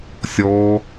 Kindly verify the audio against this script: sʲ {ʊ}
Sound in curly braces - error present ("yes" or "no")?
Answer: yes